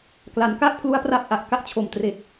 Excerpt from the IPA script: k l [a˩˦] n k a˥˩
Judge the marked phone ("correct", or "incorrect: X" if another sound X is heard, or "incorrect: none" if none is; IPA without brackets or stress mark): correct